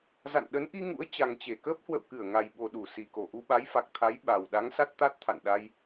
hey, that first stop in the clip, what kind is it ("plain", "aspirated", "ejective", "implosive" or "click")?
implosive